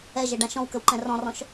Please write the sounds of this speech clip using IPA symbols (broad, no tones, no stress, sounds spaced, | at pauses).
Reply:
ɛ ʒ ɛ ɖ ã ʃ ɔ̃ w k ə w ǃ ɛ̃ r ɔ̃ r ɔ̃ ʃ